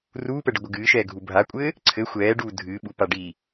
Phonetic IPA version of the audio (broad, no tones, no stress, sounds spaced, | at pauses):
r uː p ɛ ɖ ɘ ɡʷ ɘ ɡ ɨː ʃ ɛː ɡʱ u bʱ a kʷʼ ɘː | ǀʰ ɘ xʷ ɛː ɖ uː dʱ ɨː ɓ u p a ɖ i